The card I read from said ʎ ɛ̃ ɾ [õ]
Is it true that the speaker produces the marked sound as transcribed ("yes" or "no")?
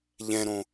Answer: yes